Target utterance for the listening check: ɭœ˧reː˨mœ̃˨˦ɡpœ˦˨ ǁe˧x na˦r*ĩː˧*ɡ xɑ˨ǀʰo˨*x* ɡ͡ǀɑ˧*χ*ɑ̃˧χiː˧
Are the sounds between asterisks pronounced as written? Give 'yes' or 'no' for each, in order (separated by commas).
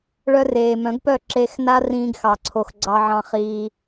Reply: yes, yes, no